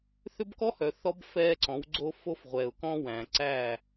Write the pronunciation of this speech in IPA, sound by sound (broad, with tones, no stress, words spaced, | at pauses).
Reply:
θʏ˦bkɔ˦hœ˨θɔ˦b fɛː˦ǀɔ̃˨˦wɡ͡ǀo˦fo˦f ʁʷɛː˨ʊ̯kɔ̃˦wæ̃ː˨ ǀæː˦˨